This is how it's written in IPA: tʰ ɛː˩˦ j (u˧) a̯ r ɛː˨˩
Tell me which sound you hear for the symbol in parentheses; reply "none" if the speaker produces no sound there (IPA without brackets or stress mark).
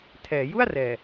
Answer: u˥˩